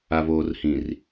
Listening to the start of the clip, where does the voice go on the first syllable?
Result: low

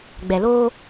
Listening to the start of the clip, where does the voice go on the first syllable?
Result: low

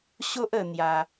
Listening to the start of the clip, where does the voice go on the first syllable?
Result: high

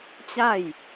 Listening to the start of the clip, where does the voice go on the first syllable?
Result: falling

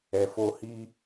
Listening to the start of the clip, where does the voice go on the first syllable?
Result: low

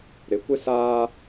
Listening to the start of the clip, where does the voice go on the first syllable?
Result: low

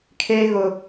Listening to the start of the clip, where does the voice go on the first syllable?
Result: high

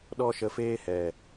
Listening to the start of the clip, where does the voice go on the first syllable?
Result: high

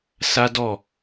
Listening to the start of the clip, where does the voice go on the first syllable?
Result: high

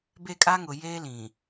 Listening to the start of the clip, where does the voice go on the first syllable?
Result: falling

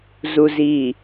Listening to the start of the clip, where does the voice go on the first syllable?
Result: low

